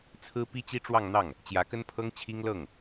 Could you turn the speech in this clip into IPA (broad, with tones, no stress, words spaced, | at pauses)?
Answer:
t͡sʰɹ̩˥pi˥ t͡ɕi˥ʈ͡ʂwɑ˥˧ŋn̪ɑ˥˩ŋ | t͡ɕjä˧˥kə˥npʰɤ˥ŋ t͡ɕʰi˥ŋ lɤ˥˩ŋ